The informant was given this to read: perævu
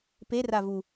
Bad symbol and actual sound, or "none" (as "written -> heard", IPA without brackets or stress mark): æ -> a